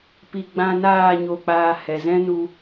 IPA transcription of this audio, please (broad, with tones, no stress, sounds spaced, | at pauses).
p i˨ ɡ͡b ã˧ n aː˦˨ ɲ o˧ k͡p aː˧ h ɛ˨ z ɛ̃˦ n u˧